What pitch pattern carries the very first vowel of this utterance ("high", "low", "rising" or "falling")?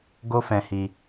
high